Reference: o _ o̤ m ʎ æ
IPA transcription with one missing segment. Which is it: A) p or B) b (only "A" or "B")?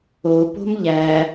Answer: A